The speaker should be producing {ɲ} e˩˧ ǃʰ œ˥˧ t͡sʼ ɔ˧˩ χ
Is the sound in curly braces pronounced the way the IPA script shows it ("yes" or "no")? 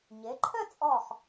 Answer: yes